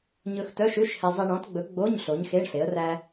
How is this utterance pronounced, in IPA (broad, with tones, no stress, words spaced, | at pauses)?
ɲɵ˧x tœ˧˥˧ʃʉ˧˥˧ʃhɛ˧ zˤi˧ɳɔ̃˨˥tɡ͡bɵ˨˥ ɡ͡bo˧˥˧ɲ ɬo˨˥ɲxe˧˥˧ɳɬe˨˥ə̯ ræ˥